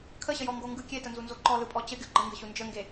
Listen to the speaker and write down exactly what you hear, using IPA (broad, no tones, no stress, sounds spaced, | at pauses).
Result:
kʰ ə ɕ ə j ɔ ŋ ɡ o ŋ ɡ ɯ kʲ e t ə n z u n z o ǃ ɔ l ɯ pʼ ɔ t͡ɕ ə ɡʲ o ɡ͡ǃ ə ŋ ɡ ə ɕ u n d͡ʒ ə ŋ ɡ e